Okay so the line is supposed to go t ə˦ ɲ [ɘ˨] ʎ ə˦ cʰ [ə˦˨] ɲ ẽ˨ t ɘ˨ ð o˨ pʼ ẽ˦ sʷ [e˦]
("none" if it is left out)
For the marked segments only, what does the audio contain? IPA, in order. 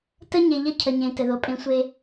e˨, ə˨, e˦

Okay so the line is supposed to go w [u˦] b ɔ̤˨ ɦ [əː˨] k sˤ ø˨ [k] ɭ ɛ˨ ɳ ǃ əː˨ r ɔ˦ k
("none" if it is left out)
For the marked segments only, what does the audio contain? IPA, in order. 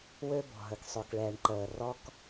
ø˦, ə˨, k

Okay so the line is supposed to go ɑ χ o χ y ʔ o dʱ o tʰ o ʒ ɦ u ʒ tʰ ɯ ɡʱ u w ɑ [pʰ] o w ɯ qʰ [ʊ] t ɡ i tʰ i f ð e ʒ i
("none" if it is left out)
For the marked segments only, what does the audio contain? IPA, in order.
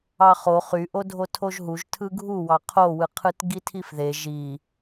qʰ, ɯ

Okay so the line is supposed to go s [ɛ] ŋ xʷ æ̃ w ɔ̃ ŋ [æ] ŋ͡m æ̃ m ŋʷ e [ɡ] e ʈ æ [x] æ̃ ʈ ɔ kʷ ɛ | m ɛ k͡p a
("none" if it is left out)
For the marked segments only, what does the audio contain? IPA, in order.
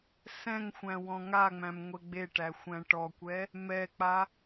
ɛ̃, a, ɡ͡b, xʷ

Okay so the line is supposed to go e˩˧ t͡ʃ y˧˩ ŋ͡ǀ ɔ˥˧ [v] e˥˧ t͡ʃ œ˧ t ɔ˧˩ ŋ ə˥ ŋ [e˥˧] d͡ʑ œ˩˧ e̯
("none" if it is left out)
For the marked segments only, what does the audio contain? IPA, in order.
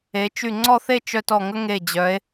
θ, e˧˩

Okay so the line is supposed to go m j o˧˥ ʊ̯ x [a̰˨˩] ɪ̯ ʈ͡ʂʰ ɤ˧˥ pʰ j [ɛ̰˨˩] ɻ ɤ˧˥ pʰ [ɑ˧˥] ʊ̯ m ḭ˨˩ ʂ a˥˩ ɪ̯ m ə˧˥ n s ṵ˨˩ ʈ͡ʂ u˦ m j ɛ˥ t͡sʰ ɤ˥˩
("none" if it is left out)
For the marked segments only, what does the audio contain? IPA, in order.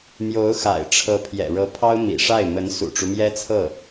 a̰˨˩, ɛ̰˨˩, ɑ˥

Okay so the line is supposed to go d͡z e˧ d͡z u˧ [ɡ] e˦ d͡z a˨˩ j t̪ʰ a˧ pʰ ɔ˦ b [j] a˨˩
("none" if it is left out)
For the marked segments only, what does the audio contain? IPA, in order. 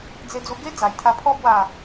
ɡ, w

